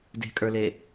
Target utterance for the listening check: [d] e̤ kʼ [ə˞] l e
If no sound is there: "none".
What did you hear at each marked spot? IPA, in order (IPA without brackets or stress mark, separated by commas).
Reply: d, ə˞